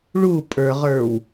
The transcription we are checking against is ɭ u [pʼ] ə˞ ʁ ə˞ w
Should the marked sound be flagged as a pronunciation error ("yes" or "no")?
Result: no